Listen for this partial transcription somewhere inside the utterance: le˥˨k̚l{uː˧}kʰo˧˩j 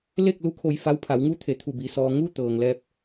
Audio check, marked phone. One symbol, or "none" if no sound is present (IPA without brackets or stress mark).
u˧